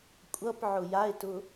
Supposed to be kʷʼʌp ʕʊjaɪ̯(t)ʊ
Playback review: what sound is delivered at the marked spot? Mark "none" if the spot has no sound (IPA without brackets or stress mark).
t